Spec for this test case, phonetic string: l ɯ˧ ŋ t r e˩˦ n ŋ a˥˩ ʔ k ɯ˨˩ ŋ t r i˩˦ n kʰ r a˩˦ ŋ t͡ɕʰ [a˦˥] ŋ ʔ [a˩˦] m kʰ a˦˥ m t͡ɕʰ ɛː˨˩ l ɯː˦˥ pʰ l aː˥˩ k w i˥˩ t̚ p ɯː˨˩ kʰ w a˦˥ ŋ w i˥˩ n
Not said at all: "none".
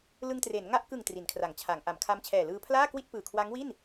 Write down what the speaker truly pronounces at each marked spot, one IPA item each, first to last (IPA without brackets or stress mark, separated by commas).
a˩˦, a˩˦